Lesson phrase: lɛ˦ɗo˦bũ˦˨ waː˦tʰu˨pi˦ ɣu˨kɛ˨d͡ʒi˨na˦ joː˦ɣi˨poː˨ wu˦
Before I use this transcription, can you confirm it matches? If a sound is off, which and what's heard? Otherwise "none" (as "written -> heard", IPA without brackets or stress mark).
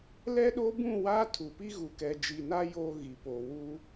none